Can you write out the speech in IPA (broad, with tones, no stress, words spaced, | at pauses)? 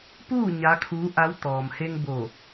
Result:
puː˥˨ ɲa˧˥kʰuː˧˥ʔa˧˥w t̪ɔː˩mhe˧ŋ bo˧˩